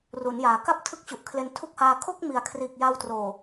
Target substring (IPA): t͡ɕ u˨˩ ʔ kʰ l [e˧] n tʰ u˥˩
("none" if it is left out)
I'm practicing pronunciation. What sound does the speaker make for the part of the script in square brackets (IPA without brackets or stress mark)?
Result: e˧